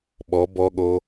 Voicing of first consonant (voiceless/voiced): voiced